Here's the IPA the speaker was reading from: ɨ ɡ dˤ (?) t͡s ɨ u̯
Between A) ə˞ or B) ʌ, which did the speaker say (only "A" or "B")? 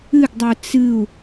A